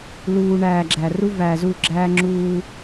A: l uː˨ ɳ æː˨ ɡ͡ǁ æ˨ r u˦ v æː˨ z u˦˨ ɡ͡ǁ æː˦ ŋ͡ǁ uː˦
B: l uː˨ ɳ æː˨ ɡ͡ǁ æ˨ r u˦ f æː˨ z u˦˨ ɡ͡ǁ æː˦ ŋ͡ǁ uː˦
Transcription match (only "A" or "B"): A